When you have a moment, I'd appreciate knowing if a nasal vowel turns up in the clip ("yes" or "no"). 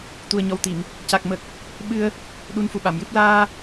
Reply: no